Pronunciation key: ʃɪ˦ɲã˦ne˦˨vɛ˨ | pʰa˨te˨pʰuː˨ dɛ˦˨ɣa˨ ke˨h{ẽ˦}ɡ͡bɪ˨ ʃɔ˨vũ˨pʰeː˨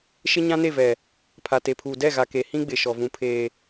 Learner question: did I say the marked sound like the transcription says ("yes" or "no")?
no